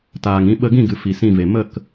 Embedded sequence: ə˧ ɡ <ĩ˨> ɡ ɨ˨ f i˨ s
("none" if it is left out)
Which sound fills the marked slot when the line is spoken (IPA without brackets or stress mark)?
ĩ˦˨